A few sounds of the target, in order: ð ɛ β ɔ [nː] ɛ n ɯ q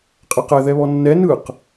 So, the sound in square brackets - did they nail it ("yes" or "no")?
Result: yes